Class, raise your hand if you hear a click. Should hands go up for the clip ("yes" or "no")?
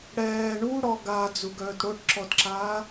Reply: yes